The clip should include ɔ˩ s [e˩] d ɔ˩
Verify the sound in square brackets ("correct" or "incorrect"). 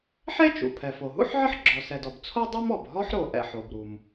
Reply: incorrect